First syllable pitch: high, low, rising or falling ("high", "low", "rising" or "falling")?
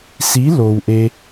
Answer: rising